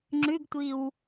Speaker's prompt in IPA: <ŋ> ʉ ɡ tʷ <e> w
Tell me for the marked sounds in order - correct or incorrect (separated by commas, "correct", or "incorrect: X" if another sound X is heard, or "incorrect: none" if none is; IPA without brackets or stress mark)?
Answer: incorrect: ŋ͡ǁ, incorrect: i